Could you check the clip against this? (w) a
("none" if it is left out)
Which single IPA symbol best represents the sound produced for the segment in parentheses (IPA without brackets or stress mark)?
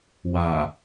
w